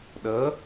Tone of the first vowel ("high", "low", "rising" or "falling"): rising